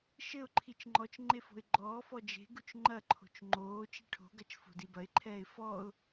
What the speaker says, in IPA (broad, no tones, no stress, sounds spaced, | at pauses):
ʃ ɘ ʊ̯ ǃʰ i t͡ʃ ŋ͡ǃ ɔ t͡ʃ ŋ͡ǃ e f o̤ ɪ̯ ɡ͡ǃ ɔː f ɔ d͡ʒ e̤ ɡ u t͡ʃ ŋ͡ǃ ɐ ǃʰ o̤ t͡ʃ ŋ͡ǃ oː t͡ʃ i ʈʰ o̤ ɡ ɐ t͡ʃ f o̤ d i b ɐ ɪ̯ ǃʰ ɛː ɪ̯ f ɔ ʊ̯